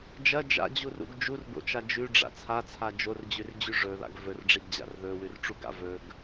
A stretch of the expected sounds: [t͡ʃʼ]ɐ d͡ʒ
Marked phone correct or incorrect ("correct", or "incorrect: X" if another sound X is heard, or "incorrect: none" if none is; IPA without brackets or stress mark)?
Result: incorrect: d͡ʒ